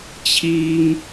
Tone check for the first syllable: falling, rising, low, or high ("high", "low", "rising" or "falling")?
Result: high